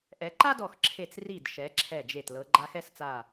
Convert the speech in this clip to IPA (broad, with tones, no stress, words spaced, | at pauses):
ʔɛ˩˧ǃa˥dɔ˧˩xǁʰe˧˩t͡s ri˧˩dʃɛ˩˧ ǁʰɛ˧˩d͡ʒe˧˩t lɤ˩˧ɡ͡ǃa˧xɛ˥˧st͡sa˧˩